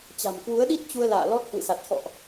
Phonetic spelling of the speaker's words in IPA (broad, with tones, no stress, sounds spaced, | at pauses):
t͡ɕ a̤˨˩ m k w u˨˦ ə̯ ɗ i˦˥ t̚ t͡ɕ u˧ ə̯ l a̰ː˧˨ l ɔ˦˥ t̚ h w ɨ̰˧˨ s a˨˩ t̚ x ɔ̰˧˨ ʔ